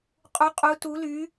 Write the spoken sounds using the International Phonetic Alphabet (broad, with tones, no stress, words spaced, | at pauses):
qʼu˦˥qʼu˦˥tu˦˥ly˦˥